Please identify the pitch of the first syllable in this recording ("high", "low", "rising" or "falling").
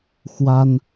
high